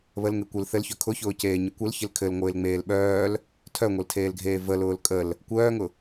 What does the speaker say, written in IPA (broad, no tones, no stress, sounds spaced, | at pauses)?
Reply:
β ə l ŋ e kʷ ɘ l θ ɘ l ç œ kʰ ʊ ç ʊː c eː ɲ ə kʷ ə l ç ɪ l kʰ ɘ l ŋʷ ɪː l ŋ͡m eː l ɓ œː l | tʰ œ ŋʷ e l tʰ eː l ɡʱ eː v ə l ʊː l kʼ ə l | kʷ œː ŋ ʊ